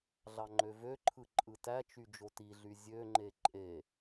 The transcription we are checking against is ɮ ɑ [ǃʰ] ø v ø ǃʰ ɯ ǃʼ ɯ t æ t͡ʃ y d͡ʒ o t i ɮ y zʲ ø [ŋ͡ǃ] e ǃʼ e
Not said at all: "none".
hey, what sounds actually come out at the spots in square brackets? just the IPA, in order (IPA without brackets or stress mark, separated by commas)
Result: ŋ͡ǃ, ŋ͡ǃ